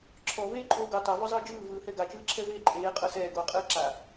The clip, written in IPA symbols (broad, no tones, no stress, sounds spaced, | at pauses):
ǁʰ ɔ v eː ǃʼ oː ɡ o tˤ a v ɔ zˤ ɯː d͡ʒ ɯː v ɯː h ɛ ɡ a t͡ʃ ɯː ǁʰ ɛ v eː ǃʼ eː qʼ ɤ s ɛː ɡ oː qʼ ɯː ǁ a